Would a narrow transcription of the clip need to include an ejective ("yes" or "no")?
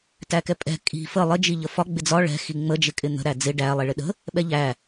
yes